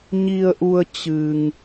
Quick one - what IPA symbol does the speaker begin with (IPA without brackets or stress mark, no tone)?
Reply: ɲ